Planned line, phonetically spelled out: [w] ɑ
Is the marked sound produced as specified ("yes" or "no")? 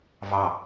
no